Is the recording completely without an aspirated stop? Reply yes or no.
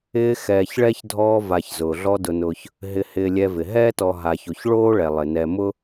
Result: yes